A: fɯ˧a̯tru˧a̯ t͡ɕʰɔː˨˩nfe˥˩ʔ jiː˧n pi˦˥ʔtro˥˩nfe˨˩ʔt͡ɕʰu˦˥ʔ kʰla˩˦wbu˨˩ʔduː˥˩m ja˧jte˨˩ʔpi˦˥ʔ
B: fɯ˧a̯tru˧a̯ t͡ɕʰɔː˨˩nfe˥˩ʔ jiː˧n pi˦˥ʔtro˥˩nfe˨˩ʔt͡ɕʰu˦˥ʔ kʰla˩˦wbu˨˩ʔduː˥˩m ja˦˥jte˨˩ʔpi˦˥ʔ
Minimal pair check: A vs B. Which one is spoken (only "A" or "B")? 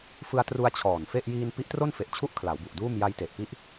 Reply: A